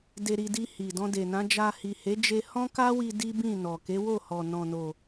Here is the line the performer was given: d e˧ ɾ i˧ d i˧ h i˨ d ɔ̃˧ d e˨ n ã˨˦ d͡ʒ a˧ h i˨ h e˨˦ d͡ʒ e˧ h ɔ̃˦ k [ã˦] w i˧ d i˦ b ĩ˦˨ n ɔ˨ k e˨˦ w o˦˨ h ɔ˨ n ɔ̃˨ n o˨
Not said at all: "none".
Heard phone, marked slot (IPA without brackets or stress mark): a˦